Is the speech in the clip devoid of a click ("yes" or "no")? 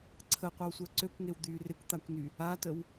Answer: no